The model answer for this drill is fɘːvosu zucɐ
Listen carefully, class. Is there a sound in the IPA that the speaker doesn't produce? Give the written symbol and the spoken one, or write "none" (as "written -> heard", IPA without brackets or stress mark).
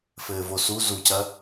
none